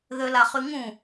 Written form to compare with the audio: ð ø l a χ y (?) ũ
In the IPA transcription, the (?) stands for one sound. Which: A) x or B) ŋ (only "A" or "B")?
B